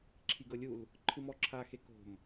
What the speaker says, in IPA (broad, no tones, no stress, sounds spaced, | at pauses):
ǁʰ i ɡ ɤ lʲ u l | ǃʰ ɯ m ɔ ǁʰ a x e k o̤ m